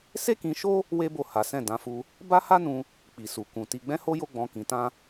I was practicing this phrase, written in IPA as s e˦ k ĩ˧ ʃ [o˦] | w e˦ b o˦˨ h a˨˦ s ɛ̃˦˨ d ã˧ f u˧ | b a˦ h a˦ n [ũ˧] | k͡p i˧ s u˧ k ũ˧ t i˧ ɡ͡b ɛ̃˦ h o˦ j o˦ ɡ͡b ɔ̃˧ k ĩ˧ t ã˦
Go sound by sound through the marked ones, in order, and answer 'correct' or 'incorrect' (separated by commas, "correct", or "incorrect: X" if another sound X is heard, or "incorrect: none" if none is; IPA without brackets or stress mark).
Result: correct, correct